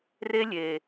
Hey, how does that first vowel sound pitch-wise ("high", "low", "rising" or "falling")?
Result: high